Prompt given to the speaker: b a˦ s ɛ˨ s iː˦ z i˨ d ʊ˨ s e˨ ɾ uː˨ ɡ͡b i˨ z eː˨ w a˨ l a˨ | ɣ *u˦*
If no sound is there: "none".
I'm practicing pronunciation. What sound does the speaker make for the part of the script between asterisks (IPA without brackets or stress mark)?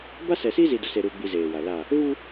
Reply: u˦